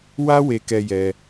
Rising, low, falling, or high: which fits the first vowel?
high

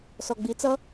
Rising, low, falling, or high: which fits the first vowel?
low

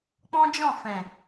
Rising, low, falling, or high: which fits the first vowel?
high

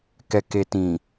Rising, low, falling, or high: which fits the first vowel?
low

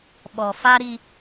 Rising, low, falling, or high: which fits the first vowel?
low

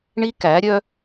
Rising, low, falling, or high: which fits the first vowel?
high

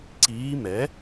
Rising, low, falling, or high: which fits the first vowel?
rising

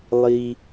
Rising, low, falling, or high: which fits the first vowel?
low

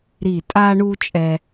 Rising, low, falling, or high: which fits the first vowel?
low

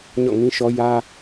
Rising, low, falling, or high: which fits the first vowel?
falling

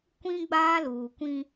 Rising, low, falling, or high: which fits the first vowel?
high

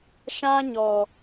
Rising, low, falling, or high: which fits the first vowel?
high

